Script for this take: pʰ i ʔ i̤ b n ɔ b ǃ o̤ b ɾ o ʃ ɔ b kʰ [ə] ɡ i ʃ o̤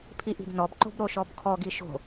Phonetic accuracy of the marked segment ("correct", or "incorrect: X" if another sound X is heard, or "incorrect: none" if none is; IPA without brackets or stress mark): incorrect: ɔ